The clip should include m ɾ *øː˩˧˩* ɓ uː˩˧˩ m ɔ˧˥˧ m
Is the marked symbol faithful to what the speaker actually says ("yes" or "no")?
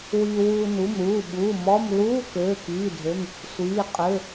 no